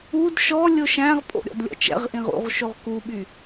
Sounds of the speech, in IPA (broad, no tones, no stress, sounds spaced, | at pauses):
u d ʃ ɔ lʲ o ʃ æ̃ ʁ pʼ o̰ ɾʲ ɔ̰ d lʲ ɔ̰ t͡ʃ ɛ̰ ʁ ʔ ĩ ʁ ṵ ʁ ʃ o ʁ k u ɓ y